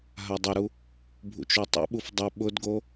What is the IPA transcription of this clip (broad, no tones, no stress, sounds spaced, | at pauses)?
ɦ a dˤ ʊ ɾ u | bʱ ṵ t͡ʃ o tˤ ṵ ɓ u f dˤ e ɓ ʊ d ɡ o